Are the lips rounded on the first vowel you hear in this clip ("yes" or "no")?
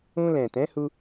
yes